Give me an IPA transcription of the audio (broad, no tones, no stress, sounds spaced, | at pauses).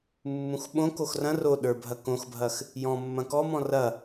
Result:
mː ũ x ɓ õ k o x r ɐ̃ r o ɗ ə˞ bʱ ɐ k õ x bʱ ɐ x | j ɔ̃ mː ɐ̃ k ɔ m ɔ̃ r ɐ